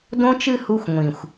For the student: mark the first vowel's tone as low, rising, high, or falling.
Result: high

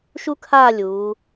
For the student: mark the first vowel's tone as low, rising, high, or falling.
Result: high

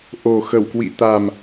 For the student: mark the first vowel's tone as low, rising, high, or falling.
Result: low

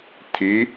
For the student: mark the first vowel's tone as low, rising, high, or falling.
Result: rising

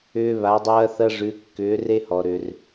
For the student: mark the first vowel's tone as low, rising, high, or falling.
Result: high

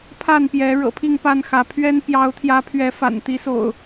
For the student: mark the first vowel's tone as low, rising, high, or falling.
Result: falling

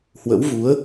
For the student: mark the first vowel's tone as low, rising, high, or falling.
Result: rising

